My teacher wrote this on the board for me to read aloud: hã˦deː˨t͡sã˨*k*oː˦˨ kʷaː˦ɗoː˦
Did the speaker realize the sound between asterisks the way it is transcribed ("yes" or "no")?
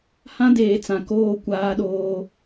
yes